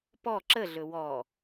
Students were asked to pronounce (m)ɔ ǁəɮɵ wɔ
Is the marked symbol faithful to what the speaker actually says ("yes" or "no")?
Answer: no